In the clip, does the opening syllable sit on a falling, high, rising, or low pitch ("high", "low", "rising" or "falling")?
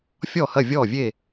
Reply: falling